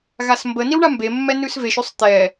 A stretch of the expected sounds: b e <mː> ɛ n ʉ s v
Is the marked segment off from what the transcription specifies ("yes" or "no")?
no